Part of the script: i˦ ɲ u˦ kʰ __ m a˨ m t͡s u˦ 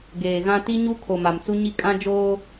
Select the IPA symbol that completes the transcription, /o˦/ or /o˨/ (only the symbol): o˨